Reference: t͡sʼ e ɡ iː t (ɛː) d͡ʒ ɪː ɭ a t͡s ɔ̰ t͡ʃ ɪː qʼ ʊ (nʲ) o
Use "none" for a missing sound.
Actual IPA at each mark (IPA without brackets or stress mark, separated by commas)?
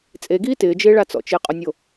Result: ɪː, nʲ